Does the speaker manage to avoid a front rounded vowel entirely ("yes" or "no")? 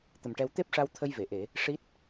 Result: yes